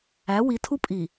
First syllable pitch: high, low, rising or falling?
rising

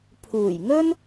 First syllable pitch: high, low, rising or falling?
low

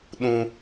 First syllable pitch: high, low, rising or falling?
high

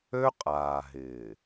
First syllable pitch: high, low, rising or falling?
high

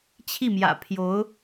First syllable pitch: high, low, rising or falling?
falling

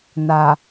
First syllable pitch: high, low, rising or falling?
low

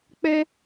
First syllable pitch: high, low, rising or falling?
high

